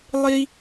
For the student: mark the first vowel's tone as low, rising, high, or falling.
high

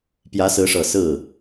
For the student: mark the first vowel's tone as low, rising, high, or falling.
rising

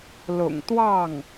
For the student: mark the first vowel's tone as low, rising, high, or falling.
low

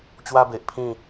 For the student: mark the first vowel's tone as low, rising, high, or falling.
high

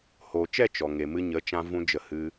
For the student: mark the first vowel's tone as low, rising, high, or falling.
low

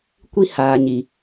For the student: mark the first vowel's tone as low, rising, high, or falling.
high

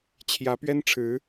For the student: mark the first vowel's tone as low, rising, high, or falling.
rising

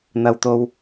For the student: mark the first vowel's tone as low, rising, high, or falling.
low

